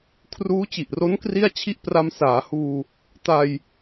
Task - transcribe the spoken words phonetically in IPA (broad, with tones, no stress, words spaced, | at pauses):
kʰruː˦˥t͡ɕi˨˩ʔro˦˥n kri˥˩a̯t͡ɕʰi˥˩ʔ pra˧msaː˩˦ huː˧ | ta˧j